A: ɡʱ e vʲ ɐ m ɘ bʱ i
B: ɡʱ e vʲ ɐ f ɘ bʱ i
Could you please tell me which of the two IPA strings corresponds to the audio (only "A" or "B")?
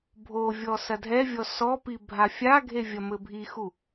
A